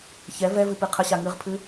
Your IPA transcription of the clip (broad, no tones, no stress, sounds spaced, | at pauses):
ç ɛ v ɛ v ɨ p ɨ qʰ ə ɕ a ŋ ɨ ʁ pʰ ɨ